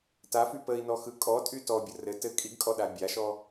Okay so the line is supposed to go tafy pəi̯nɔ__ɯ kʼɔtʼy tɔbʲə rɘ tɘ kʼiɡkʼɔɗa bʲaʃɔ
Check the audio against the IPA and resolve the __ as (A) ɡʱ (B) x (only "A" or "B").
B